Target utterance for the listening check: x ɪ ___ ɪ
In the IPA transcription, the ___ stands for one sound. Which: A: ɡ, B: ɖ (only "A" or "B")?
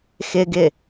A